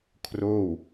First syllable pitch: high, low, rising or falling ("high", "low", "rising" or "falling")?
falling